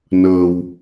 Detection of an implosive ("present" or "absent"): absent